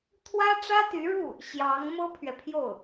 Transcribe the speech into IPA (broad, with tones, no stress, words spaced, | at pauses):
t̪ʰwä˥ʈ͡ʂä˥t̪y˧˥ɻu˥˩ | ɕjɑ˧˥ŋ mɤ˥pʰɥɛ˨pʰjo˥˩ʊ̯